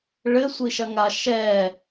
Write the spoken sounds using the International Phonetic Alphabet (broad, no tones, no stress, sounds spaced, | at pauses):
ɭ ɘ sʷ i ʃ ɐ ŋ a ʃ ɛ